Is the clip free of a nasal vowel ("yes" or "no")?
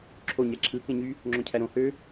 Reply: no